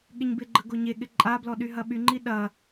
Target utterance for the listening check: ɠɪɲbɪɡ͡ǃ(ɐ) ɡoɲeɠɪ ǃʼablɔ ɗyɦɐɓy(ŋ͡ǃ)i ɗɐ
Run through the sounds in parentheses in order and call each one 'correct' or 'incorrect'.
incorrect: ə, correct

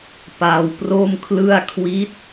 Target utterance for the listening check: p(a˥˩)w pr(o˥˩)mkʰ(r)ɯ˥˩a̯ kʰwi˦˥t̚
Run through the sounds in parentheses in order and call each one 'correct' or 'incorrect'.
incorrect: a˧, correct, incorrect: l

